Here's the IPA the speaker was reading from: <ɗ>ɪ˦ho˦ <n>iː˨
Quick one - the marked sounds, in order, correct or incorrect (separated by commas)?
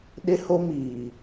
correct, incorrect